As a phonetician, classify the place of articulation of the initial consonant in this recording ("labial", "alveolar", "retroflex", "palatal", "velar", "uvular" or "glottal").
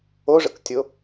retroflex